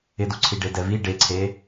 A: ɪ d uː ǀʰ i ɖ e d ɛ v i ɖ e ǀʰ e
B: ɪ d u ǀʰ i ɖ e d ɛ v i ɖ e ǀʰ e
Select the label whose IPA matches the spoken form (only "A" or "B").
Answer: B